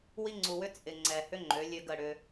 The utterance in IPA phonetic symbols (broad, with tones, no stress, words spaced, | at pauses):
wi˦ŋ͡ǀu˨wʏ˦ t͡sʼɪ˨ ŋ͡ǀɛ˨hʏ˦ ŋ͡ǃø˨˦lʲø˦ɡə˦˨ɽʏ˦